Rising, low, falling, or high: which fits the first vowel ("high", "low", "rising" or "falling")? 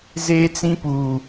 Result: high